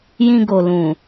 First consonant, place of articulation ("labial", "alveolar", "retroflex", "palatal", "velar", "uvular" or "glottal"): palatal